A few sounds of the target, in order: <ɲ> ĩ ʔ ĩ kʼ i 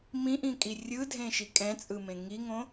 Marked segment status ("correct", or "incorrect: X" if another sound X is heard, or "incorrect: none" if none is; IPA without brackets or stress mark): incorrect: m